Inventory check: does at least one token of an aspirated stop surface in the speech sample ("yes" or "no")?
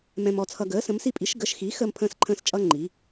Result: yes